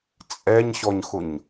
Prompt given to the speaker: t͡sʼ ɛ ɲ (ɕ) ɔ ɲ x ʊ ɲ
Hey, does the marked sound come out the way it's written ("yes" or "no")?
yes